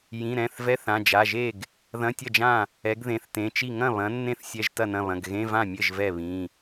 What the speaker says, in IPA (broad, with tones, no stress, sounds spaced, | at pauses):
j ĩ˩˧˩ ɾ ɛ̃˩˧˩ θ v ɛ˧˥˧ θ ã˩˧˩ d͡ʒ a˩˧˩ ʒ e˥˩ ɡ | ð ɐ̃˧˥˧ tʲ ɐ˥˩ d͡ʒ ã˥˩ | ɛ˨˥ ɡ ð ẽ˩˧˩ θ t ẽ˩˧˩ t͡ʃ i˥˩ ŋ ɐ̃˥˩ β ɐ̃˨˥ nː ẽ˥˩ θ sʲ ɛ˧˥˧ ʒ t ɐ˥˩ n ɐ̃˥˩ β ɐ̃˩˧˩ ɡ ɣ ẽ˧˥˧ v ã˥˩ mʲ ɘ˥˩ ʒ v ɛ˥˩ β ĩ˩˧˩